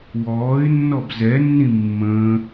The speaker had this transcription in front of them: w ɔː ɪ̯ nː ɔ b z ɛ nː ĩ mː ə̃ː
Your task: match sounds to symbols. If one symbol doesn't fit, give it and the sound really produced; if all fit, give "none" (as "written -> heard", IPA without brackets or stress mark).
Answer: none